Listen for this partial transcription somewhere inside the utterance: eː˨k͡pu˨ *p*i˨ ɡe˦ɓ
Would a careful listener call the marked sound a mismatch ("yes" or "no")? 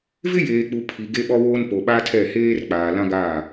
yes